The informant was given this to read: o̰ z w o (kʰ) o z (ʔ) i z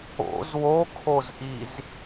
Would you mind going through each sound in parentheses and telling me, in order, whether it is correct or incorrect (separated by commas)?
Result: correct, correct